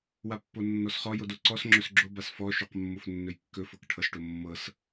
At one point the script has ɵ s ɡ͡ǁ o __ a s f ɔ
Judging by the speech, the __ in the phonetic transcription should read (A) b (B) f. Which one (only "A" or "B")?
A